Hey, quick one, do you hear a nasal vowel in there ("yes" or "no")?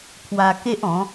yes